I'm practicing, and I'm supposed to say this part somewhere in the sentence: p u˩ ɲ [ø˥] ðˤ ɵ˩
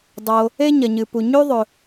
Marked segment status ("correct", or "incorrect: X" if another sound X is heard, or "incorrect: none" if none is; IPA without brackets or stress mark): incorrect: ʉ˥